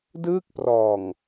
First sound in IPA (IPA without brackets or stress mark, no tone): d